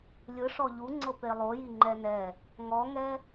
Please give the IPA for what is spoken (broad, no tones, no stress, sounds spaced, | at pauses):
lʲ ɯ ʂ ɔ ʎ u ŋ͡ǀ ɤ p e lˠ o j i ŋ͡ǃ ɛ n ɛ | ŋ ɔ ŋ ɛ